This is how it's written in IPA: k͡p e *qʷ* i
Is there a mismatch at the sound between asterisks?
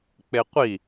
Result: no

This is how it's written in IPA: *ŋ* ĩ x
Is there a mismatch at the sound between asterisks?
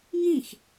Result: no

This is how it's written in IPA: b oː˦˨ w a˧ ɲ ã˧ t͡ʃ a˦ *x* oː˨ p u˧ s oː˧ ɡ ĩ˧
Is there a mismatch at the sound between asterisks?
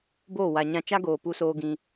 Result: yes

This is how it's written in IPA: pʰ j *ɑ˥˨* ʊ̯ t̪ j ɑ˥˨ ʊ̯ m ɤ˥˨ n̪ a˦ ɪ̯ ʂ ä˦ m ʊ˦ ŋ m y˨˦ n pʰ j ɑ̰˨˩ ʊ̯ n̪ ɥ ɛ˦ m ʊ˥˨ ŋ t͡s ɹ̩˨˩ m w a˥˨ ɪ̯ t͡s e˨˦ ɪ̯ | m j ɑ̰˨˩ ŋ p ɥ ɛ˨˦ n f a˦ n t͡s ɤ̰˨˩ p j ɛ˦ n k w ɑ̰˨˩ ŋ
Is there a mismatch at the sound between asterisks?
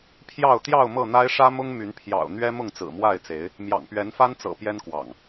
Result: no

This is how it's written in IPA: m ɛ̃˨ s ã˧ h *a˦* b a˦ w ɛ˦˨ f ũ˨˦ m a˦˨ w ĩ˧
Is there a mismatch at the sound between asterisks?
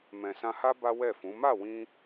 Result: no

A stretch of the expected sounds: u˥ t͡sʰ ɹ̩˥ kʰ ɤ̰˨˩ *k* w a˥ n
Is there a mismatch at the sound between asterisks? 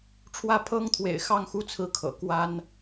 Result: no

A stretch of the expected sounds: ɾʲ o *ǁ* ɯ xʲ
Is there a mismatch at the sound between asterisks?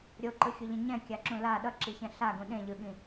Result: yes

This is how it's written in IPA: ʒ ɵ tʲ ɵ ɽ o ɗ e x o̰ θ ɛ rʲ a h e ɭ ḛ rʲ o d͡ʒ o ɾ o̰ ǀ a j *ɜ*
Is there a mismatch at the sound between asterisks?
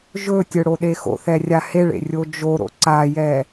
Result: yes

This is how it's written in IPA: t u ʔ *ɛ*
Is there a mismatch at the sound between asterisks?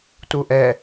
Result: no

